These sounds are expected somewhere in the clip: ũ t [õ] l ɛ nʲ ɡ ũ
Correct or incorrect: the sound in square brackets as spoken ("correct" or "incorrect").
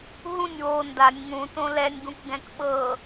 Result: correct